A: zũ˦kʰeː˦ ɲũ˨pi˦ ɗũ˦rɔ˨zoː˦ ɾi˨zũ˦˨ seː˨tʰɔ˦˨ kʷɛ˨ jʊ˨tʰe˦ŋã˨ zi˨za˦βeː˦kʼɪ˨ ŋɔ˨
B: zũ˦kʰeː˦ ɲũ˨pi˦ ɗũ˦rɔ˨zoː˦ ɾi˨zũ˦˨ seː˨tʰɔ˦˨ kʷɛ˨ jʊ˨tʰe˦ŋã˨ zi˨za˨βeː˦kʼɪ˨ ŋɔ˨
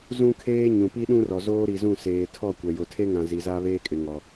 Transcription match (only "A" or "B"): A